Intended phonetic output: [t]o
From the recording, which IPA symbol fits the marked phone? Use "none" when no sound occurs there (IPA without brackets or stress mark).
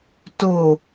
t